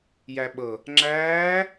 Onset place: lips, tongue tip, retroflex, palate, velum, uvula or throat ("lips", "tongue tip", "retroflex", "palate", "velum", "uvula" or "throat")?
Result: palate